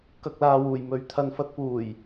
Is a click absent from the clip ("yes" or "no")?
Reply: yes